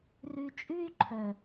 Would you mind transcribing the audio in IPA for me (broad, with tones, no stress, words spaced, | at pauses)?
rʉ˧t͡ʃʼʉ˦y̯ ǃʰœ˨